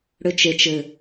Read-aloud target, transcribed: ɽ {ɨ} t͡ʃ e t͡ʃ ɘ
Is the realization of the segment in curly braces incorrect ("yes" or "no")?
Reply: yes